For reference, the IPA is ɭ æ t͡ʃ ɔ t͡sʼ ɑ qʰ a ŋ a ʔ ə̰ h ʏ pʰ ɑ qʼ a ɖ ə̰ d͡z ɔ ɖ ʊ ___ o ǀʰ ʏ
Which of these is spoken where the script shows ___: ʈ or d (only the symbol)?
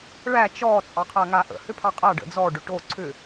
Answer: ʈ